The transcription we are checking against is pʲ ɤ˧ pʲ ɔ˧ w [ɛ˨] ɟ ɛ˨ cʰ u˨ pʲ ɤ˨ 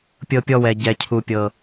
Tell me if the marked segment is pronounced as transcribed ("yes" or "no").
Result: yes